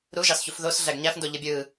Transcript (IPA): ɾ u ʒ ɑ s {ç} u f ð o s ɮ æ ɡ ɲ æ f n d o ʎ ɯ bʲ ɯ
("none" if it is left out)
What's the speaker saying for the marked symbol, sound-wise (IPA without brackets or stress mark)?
ç